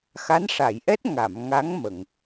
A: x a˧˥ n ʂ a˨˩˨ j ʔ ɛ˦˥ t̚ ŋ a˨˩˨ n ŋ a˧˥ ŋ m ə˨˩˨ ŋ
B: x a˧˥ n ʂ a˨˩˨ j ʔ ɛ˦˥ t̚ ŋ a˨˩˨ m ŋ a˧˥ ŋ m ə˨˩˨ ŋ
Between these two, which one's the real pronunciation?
B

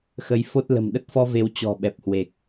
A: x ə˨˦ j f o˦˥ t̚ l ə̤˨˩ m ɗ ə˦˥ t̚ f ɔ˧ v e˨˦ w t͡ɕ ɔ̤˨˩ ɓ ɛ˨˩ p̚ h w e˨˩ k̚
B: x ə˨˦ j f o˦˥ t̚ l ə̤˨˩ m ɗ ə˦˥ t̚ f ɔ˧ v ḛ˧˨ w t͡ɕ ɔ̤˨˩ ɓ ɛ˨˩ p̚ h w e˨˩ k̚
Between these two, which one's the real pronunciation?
A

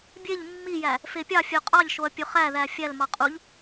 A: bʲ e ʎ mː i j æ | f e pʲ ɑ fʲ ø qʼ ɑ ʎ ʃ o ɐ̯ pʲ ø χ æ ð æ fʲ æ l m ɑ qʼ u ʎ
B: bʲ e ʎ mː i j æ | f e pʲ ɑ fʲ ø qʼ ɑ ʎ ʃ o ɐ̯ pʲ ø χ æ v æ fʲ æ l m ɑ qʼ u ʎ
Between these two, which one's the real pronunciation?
A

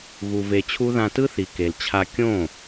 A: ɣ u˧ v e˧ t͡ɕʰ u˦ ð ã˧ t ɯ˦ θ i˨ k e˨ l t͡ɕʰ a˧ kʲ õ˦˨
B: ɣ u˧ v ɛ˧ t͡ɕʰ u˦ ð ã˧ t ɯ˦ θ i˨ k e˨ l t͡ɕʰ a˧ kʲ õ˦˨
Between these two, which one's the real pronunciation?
A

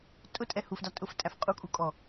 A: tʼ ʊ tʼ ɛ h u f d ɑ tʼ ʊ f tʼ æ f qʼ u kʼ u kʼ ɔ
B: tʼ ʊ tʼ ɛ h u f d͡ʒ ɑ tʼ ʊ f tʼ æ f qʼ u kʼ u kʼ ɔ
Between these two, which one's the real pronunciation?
A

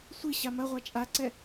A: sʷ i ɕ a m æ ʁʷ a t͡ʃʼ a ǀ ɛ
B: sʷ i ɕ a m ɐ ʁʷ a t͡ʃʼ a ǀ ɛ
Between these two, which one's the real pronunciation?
B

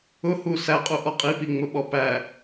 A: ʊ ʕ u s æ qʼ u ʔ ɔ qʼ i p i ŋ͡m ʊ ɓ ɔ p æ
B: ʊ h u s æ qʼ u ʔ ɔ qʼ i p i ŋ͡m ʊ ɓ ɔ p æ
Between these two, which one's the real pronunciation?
B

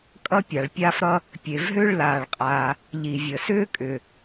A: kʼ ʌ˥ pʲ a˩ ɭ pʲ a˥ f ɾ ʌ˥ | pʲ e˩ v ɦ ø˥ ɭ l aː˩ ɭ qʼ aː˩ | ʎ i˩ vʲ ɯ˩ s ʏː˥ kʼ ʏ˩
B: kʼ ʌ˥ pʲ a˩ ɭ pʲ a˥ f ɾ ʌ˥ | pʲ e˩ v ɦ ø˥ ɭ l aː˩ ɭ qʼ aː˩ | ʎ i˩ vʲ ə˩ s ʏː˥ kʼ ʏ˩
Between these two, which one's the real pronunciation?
B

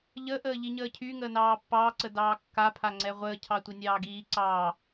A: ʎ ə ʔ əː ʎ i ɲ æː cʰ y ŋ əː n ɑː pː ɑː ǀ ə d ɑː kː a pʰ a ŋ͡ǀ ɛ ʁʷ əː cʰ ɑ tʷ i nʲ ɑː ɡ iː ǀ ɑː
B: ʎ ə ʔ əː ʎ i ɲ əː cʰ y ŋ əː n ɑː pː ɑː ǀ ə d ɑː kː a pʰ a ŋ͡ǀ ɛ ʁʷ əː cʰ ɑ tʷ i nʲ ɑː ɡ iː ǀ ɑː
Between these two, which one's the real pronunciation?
B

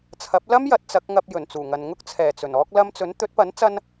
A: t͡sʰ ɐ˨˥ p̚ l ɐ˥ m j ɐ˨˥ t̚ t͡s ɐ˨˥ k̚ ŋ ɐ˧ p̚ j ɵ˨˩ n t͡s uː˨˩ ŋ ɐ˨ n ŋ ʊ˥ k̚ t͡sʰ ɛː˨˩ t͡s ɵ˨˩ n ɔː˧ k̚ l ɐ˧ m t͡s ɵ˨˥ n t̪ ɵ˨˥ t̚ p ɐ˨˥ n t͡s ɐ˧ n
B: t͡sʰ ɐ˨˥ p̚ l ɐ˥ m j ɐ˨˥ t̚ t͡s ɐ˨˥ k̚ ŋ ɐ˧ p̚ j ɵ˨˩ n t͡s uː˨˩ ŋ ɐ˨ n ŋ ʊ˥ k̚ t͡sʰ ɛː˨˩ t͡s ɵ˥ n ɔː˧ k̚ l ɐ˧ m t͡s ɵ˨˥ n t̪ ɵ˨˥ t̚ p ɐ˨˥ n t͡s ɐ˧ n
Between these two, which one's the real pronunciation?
A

